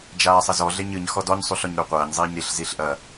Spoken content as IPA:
d͡ʒ aː sˤ ɘ z ɔ ɮ e ɲ ɨ ɲ x ɔ d ɔ ɲ sˤ u ɬ ɔ ɲ ɾ u qʷ ɐː ɲ zˤ iː ɲ ɾ i ɬ z i ɬ ʔ ɐ

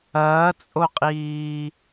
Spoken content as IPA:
ɐː t͡sʼ o qʼ iː

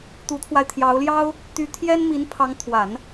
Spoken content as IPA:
t̪ u˧˥ t̪ʰ w a˧ ɪ̯ t̪ʰ j ɑ˧˥ ʊ̯ l j ɑ˥ ʊ̯ | t̪ y˧˥ t̪ʰ j ɛ˥ n m i˧˥ n pʰ ɑ˧˥ ŋ t̪ʰ w a˨˩˦ n

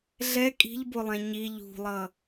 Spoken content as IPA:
ɮ ɛ kʼ i̤ ʎ b o lˠ ɛ̃ ɲ i ʎ ṳ lˠ ʌ

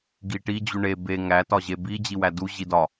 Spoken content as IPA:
ɡ i ʈ i d͡ʑ u ɳ e b e ŋ æ t ɒ ʑ e b i d͡ʑ i w æ d u ʑ i d ɒ

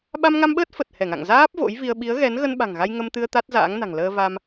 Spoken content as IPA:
ɓ a˧ m ŋ a˧ m ɓ əː˦˥ t̚ f ə˨˩ t̚ h ɛ˧˩ ŋ a̰˧˨ ŋ z aː˦˥ p̚ v o̰˧˥ j v i˧ ə̯ ɓ i˨˦ ə̯ ɣ ɛ˨˦ n ɣ ə˧ n ɓ a̤˨˩ ŋ ɣ a˧ j ŋ ə˧ m t̪ ɨ˧ ə̯ t̪ a˦˥ t̚ z a̰ː˧˥ ŋ n a̤˨˩ ŋ l əː˧ v a˧ m

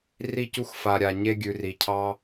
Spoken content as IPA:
r i˦˨ c u˦˨ x f a˨ ɾʲ a˨ ɲ e˧ ɡʲ ʉ˨ r i˨ cʰ ɑ˧

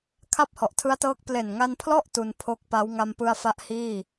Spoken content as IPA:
kʰ a˥˩ p̚ h ɔ˨˩ ʔ tʰ ɯ˦˥ a̯ t ɤː˦˥ k̚ p l e˨˩ n ŋ a˧ n pʰ l ɔ˥˩ ʔ t u˧ n pʰ o˦˥ k̚ p a˦˥ w ŋ a˧ m p ɯ˧ a̯ f a˦˥ ʔ h iː˥˩

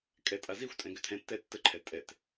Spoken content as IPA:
kʼ ɛ tʼ a z i xʷ tʼ ɛ̃ ɡ ʏ tʰ ɛ̃ tː ɛ tː ə ǃʰ ɛ tʼ ɛ t

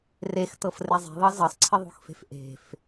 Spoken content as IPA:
r e x t ɤ f r e zˤ e̤ ðˤ ɤ z ɤ sˤ ǀʰ ɪ ðˤ o̤ x f e̤ f ʔ e̤ f

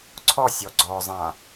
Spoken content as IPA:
ǀʰ ɔ sʲ ɔ ɡ͡ǀ ɔ zˤ ã

